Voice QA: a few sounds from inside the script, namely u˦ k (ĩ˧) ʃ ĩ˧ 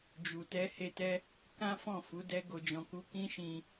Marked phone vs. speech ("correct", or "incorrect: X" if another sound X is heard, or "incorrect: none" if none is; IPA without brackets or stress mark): incorrect: ĩ˦